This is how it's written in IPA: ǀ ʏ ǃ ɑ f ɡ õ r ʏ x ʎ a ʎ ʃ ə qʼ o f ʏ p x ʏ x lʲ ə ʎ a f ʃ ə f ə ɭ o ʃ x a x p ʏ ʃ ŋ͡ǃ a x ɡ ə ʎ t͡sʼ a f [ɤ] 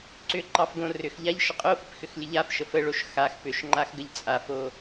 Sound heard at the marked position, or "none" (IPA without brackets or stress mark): o